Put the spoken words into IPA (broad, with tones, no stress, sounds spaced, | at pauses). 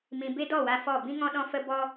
m ĩ˨ b e˦ d ɔ˦˨ w a˧ f ɔ˦˨ b ĩ˦ ŋ ɔ̃˦ ɗ ɔ̃˦ f ə˦ b ɔ˦